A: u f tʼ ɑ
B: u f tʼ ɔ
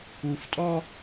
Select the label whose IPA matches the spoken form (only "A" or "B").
B